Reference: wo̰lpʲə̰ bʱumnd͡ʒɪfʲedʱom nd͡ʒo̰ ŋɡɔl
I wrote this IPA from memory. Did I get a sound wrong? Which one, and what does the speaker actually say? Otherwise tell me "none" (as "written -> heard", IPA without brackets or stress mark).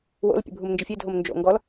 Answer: none